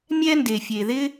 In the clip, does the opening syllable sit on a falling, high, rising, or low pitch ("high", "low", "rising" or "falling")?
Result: high